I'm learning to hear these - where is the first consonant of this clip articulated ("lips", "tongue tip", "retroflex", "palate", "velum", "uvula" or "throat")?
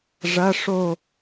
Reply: retroflex